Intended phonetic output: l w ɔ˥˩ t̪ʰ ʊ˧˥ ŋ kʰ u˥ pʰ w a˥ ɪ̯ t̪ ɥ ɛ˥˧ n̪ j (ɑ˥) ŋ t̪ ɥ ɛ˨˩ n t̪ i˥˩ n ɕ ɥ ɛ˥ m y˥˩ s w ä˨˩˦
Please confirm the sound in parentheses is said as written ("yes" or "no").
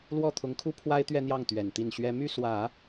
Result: no